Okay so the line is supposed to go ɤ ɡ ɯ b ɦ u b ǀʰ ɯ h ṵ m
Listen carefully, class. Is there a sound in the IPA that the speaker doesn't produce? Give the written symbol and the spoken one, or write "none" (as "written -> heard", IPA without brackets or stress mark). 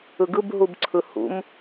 ɤ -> ɯ